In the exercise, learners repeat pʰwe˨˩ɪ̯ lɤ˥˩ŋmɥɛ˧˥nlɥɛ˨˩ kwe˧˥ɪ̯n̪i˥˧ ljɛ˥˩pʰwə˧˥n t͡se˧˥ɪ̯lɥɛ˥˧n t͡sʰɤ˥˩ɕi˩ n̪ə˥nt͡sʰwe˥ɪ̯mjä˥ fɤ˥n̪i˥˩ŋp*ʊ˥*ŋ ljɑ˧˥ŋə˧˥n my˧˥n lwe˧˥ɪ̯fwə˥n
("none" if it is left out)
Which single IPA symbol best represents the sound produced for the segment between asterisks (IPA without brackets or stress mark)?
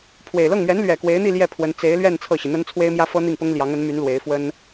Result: ʊ˥